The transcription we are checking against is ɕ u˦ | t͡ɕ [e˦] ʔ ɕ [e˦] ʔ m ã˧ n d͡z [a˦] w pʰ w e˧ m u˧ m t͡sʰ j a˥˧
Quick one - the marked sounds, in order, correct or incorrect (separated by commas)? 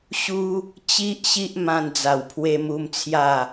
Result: incorrect, incorrect, incorrect